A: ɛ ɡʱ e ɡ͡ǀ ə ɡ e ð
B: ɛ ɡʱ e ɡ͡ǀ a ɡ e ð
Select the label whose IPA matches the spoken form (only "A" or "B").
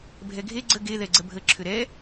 A